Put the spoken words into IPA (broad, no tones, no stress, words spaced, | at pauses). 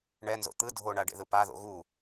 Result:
ɳɛnzo̰ t̪ɯ dʱoɳa ɖḛðɯpaðo̰ ɣu